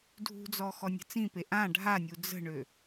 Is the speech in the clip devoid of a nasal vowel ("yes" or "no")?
no